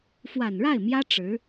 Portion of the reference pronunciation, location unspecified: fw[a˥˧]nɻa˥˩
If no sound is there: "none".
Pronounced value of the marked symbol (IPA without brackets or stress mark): a˨˩